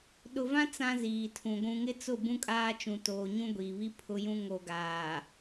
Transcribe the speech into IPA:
ɗ ʊ˨ v ã˦ t͡s ã˦ z iː˨ tʰ ũ˨ ɡʷ ũ˨ ŋ ɪ˦ t͡s ʊ˦˨ b ũ˦ kʼ aː˦ t͡ʃ ũ˨ t oː˨ ɲ ũ˦ ɡʷ iː˨ β i˦ pʰ ʊ˦ j ũ˦ ŋ o˨ ɡ aː˨

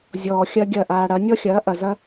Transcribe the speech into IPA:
zʲ ɔː˨ xʲ ɐ˦ ɡʲ ɐ˦˨ ʔ aː˧ ɽ ɐ˨˦ nʲ ɔ˦ xʲ ɐː˨˦ ʔ ɐ˨ z ɐ˦

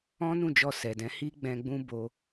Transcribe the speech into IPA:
ɔ̃˦ n ũ˦˨ d͡ʒ ɔ˧ s ɛ˨ d ɛ̃˨˦ h i˦ ɡ͡b ɛ̃˧ ɡ͡b ũ˧ b o˧

